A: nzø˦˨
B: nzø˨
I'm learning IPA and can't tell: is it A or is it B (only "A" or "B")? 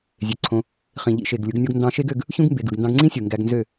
A